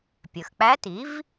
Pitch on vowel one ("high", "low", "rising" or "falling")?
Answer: low